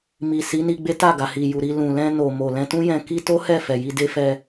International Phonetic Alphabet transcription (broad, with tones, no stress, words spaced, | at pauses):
mi˨ si˨˦ni˧ɡ͡be˦ ta˦˨ɡa˨hi˨ ju˨ɾi˧ lũ˨lɛ̃˧no˨mo˨ lɛ̃˧tũ˦jɛ̃˧ ki˦ to˦hɛ˦˨fɛ˨ ji˧ de˦ fɛ˧